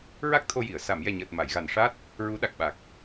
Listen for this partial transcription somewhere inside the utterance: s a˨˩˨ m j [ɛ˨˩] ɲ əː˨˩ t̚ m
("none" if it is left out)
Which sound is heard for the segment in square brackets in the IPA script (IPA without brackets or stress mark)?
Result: ɛ˨˩